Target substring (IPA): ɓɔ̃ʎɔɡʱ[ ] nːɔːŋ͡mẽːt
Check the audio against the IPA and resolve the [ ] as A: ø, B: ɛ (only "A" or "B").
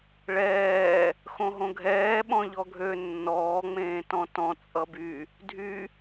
A